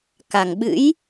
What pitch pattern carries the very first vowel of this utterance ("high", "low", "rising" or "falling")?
low